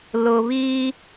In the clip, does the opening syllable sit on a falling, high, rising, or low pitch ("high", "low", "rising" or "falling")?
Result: low